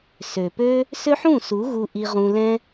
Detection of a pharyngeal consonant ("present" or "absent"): present